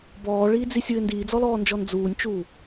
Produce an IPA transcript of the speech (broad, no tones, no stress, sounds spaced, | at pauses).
b ɔː ɭ iː d͡z i sʲ ɨ ɪ̯ n d iː d͡z ɔ l ɔː n d͡ʒ ɔ n d͡z uː nʲ t͡ʃ uː